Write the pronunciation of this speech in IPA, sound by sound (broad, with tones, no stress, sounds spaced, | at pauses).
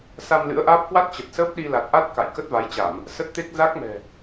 s a˧ m l ɨ̰˧˥ ə̯ ʔ aː˦˥ p̚ k w a˦˥ t̚ t͡ɕ ə˨˩ t̚ s əː˦˥ p̚ ɗ i˧ l a˨˩ t̚ ʔ a˦˥ t̚ k a̰˧˨ j k ə˦˥ t̚ v a˨˦ j t͡ɕ a˧˩˨ m | s ə˦˥ t̚ t̪ e˦˥ k̚ z a˦˥ k̚ m ɛ̤˨˩